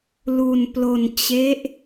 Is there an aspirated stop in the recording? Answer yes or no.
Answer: no